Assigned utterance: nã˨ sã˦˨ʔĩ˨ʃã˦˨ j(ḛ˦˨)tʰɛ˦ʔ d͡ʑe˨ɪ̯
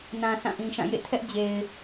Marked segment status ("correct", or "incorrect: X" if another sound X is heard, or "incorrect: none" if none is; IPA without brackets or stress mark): correct